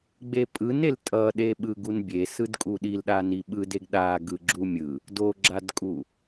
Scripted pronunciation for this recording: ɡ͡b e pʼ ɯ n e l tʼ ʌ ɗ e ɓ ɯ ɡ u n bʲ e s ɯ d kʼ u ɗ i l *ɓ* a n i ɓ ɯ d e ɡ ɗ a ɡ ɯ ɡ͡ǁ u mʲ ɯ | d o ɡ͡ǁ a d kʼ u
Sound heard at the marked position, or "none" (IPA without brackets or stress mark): ɗ